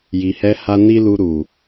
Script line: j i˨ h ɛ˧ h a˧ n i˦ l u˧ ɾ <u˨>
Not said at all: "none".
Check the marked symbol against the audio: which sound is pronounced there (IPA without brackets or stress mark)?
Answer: u˨